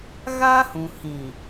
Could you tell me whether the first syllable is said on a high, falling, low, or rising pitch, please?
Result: high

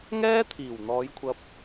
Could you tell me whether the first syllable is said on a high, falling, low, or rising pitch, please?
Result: high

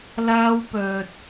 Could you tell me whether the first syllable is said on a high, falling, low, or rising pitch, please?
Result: high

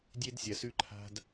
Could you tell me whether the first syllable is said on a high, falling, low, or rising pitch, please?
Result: high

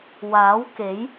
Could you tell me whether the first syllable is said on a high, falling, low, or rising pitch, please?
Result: rising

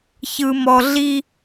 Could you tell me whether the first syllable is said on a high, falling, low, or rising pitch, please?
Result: low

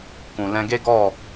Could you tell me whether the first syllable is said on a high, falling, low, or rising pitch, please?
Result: low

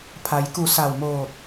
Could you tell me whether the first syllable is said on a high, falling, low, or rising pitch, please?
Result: low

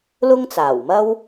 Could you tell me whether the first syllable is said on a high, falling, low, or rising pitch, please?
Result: high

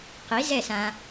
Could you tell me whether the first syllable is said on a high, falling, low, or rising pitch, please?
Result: rising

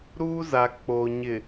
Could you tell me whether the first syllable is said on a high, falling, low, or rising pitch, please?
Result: high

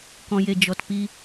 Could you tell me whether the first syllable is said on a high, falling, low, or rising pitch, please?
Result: low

